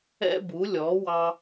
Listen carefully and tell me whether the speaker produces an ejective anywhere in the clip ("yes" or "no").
no